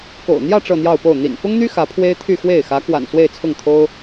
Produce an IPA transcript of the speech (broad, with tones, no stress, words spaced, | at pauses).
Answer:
ko̰˨˩ʊ̯n̪jä˥˧ ʈ͡ʂɤ˥˧n̪jɑ˥˧ʊ̯po˥˩ʊ̯ n̪ḭ˨˩nfʊ˥ŋn̪y˥ xä˧˥pʰwe˥ɪ̯ t̪ʰy˥˧xwe˥˩ɪ̯ xä˧˥kwa̰˨˩n swe˥˧ɪ̯t͡sʰʊ˥˩ŋt̪ʰo˥ʊ̯